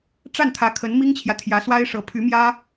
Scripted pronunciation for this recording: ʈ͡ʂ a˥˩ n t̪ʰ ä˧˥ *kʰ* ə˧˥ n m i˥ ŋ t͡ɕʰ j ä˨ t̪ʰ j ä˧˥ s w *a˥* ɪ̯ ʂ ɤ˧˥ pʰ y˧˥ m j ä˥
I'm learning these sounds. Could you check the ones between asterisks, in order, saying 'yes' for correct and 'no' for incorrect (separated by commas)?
yes, yes